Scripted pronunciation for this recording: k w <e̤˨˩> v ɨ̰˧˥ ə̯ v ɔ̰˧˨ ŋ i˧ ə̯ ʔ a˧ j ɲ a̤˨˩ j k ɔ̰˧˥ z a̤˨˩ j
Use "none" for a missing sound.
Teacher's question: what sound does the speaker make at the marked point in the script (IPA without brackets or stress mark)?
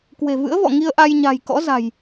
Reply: e̤˨˩